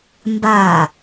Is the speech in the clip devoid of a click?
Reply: yes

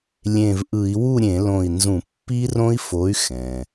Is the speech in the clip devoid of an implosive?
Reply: yes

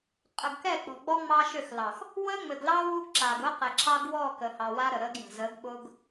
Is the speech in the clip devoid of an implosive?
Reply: no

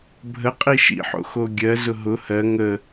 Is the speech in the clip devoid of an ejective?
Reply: no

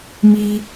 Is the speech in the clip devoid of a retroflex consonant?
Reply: yes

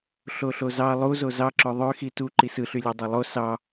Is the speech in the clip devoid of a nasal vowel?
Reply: yes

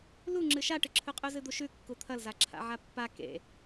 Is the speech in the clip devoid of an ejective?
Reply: no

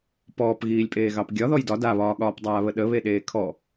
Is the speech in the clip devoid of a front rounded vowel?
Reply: yes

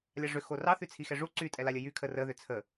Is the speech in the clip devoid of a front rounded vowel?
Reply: no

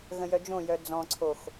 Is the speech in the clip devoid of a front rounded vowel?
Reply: no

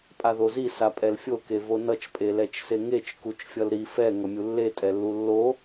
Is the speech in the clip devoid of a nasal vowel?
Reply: yes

